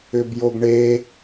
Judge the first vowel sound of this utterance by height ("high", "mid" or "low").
high